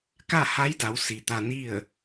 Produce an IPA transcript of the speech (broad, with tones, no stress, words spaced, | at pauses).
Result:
ka˥˨ha˧˥jda˩˧w si˩t̪a˧ni˥˨ə̯